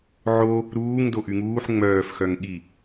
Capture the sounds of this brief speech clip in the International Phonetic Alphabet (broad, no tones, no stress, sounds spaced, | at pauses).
ʕ o | ɾ uː ŋ d o ʔ y ŋ uː ħ ŋ͡m œː f x œ ŋ ɠ i